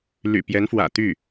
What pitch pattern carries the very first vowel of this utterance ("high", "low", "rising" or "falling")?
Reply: low